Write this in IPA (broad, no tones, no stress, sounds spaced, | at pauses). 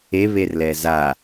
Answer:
e β e r l ɛ z a